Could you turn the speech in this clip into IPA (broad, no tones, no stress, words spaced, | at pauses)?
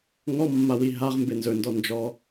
ŋɔmːawi ɦaʁmbe nzɵndɔ nd͡ʒɔ